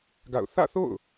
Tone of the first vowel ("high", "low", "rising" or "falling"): falling